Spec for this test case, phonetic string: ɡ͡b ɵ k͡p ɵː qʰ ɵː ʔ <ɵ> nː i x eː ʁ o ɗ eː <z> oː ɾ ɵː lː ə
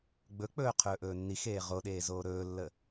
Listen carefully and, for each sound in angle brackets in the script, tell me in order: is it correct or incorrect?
incorrect, correct

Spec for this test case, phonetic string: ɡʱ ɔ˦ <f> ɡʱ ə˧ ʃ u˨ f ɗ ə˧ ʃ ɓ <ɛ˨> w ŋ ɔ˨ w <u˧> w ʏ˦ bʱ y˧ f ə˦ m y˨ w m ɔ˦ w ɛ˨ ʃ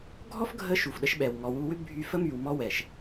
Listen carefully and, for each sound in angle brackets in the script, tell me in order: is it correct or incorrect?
correct, correct, correct

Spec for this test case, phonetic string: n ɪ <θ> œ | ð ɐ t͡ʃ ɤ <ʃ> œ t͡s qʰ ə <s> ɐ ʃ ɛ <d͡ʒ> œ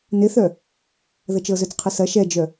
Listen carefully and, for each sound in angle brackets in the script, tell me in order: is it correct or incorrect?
correct, incorrect, correct, correct

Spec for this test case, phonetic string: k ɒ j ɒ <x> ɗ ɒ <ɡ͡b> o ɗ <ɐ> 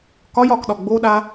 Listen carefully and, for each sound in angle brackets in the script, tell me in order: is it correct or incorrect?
incorrect, correct, incorrect

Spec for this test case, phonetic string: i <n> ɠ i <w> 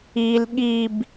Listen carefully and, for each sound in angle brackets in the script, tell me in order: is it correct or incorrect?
incorrect, incorrect

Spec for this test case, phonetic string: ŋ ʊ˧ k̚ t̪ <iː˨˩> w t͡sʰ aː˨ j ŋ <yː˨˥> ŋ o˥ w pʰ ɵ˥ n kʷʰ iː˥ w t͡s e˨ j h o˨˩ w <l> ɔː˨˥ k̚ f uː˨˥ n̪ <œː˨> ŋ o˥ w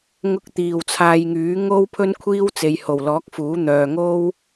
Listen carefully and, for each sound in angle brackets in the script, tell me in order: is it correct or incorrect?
correct, correct, correct, correct

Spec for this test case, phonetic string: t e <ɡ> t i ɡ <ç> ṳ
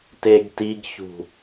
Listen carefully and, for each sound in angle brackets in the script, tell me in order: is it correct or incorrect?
correct, correct

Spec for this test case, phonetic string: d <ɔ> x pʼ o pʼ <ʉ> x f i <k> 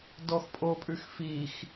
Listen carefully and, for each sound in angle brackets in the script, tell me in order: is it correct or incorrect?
correct, correct, incorrect

